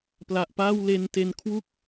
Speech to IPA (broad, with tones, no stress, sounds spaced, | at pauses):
p l a˨˩ ʔ p aː˥˩ w l e˧ n t e˧ n kʰ w u˥˩ k̚